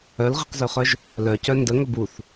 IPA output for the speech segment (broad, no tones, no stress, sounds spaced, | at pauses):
œ l ʁ i q z ø χ œ ʒ | l œ c œ n d ə ŋ ɵ b u θ